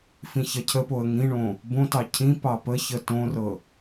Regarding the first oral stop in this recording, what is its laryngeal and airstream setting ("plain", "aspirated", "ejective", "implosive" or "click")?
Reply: aspirated